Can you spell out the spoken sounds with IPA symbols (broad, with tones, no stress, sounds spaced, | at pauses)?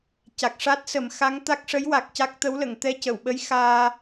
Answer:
c a˨˩ k̚ ʂ a˦˥ t̚ s ə˨˩˦ m x a˧˥ ŋ t̪ a˦˥ k̚ ʂ ə˧˥ j w a˨˩ k̚ c a˦˥ k̚ t̪ ə˧˥ w l ə˨˩˨ ŋ t̪ ɛ˧ c ə˨˩˨ w ɓ ə˧˥ j x aː˧